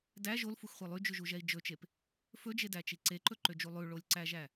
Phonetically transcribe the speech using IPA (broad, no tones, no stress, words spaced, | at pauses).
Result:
dæ ʒolfuxχʷɛ lˠyd͡ʒʉʒuʒɛi̯ d͡ʒɵt͡ʃep | fɵd͡ʒedæt͡ʃi ǀeǃɵǃød͡ʒu lˠʉɭolʲǀæʒæ